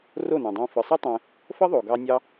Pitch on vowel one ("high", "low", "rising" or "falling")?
falling